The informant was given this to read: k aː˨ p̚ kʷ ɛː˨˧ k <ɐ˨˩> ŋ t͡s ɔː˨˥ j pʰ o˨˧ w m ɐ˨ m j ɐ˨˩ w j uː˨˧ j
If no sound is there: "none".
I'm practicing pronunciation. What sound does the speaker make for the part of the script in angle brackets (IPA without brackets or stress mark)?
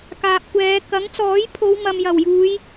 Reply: ɐ˨˥